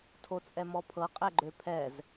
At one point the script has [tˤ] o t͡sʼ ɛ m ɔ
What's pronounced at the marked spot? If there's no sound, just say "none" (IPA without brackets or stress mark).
tʰ